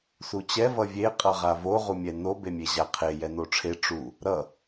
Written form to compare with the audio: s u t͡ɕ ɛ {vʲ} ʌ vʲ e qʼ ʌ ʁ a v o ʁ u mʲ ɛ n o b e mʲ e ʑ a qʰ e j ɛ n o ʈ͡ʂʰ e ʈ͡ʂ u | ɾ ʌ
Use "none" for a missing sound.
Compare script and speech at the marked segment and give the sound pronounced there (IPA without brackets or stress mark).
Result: v